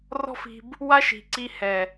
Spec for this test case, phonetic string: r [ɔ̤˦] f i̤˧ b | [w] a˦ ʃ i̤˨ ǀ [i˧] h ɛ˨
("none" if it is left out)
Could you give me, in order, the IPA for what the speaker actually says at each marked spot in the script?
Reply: ɔ̤˦, w, i˧

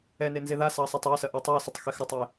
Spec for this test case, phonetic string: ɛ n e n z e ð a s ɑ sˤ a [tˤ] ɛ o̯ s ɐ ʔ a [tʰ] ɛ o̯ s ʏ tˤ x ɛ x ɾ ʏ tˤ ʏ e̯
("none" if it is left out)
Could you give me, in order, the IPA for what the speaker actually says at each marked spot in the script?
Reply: tˤ, tˤ

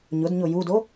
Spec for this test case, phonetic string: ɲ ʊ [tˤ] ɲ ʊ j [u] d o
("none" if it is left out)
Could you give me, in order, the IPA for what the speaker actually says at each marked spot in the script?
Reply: d, u

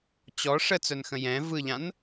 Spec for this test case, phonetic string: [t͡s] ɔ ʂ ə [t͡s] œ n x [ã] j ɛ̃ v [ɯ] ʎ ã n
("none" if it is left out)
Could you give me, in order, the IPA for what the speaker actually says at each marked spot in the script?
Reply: t͡ɕ, t͡s, ə̃, ɯ

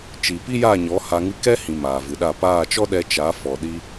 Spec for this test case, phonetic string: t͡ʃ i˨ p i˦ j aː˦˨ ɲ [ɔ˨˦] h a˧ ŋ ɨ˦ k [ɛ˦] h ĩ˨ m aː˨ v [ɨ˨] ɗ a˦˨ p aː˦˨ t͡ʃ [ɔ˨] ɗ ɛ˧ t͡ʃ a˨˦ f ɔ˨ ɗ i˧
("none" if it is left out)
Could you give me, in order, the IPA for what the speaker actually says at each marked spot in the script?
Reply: ɔ˨˦, ɛ˦, ɨ˨, ɔ˦

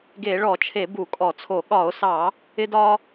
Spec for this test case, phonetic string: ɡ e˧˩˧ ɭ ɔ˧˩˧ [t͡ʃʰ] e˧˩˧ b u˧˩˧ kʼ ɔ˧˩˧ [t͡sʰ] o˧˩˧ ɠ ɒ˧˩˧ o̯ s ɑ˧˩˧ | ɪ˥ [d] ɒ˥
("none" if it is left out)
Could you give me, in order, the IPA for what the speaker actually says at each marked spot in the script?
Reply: t͡ʃʰ, t͡sʰ, d

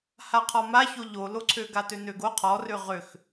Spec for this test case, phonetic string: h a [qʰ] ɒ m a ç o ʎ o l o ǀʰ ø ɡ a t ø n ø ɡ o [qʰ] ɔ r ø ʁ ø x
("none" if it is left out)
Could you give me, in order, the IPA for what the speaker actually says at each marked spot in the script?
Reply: qʰ, qʰ

